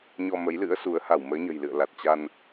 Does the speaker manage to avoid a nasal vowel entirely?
yes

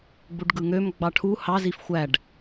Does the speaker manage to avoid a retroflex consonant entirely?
no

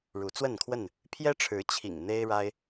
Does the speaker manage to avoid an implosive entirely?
yes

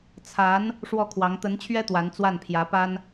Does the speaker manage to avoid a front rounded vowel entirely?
yes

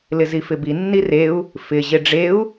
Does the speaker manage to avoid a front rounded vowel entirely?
yes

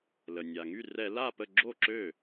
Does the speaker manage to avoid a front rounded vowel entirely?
no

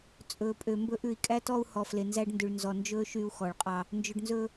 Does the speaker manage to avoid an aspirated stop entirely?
yes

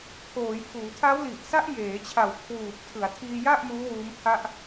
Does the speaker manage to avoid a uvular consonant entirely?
yes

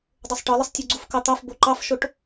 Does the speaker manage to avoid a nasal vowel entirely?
yes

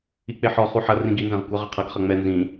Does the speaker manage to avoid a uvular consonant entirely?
no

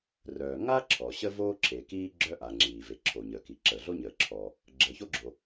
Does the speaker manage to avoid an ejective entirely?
yes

